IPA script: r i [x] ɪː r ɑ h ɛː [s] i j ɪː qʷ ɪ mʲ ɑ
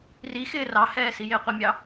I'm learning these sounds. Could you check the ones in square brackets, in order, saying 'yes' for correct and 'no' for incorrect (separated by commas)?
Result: yes, yes